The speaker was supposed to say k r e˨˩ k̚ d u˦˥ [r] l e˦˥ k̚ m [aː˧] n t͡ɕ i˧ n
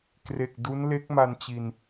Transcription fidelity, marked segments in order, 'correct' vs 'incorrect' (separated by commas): incorrect, incorrect